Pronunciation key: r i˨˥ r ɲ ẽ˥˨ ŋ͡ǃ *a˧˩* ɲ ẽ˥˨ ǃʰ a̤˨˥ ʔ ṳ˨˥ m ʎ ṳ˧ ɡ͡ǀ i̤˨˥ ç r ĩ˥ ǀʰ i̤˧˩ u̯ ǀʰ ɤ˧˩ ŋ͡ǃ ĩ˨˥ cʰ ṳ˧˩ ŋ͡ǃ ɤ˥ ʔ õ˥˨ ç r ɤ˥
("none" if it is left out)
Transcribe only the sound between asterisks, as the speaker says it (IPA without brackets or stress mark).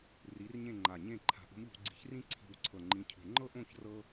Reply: a˧˩